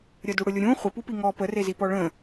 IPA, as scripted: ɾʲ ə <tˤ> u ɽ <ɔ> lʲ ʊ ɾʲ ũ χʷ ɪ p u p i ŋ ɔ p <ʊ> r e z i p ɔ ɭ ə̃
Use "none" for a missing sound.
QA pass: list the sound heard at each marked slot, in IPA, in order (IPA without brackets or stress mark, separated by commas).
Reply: d, ʊ, ə